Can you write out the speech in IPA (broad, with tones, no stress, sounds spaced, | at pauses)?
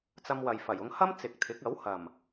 t͡s ɐ˧ m w ɐ˨ j f ɐ˨˩ j ʊ˧ ŋ h ɐ˥ m t͡s ɪ˨ k̚ t̪ʰ ɪ˨˥ k̚ ɐ˨˥ w h ɐ˨˩ m